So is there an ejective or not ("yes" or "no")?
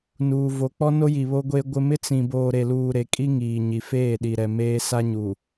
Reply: yes